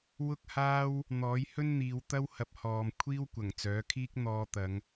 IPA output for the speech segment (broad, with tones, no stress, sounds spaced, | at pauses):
w ʊ˥ k̚ h aː˥ w | n̪ ɔː˨˥ j h ɵ˥ n n̪ iː˨˧ w t̪ ɐ˥ w h ɐ˨˥ p̚ h ɔː˨ m kʷʰ iː˥ w kʷ ɐ˨˩ ŋ t͡s œː˨˥ kʰ iː˥ k̚ n̪ ɔː˧ t̪ ɐ˨˧ ŋ